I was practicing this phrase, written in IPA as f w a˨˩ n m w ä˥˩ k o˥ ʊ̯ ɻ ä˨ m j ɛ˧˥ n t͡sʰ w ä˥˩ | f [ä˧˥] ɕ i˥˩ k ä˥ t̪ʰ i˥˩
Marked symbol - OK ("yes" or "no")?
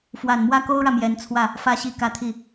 no